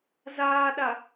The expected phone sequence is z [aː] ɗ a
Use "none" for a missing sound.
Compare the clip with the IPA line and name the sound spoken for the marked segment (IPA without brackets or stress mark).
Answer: aː